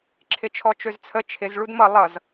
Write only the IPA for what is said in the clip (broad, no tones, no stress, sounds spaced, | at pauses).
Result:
ǁʰ ɪ t͡ʃʰ ɔ t͡ʃ ø z t͡sʰ ə t͡ʃʰ ɪ z ɭ u d m ʌ lˠ ʌ z